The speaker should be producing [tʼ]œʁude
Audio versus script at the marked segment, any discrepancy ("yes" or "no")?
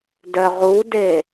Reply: yes